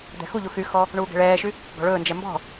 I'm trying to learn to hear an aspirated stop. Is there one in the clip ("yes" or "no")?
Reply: no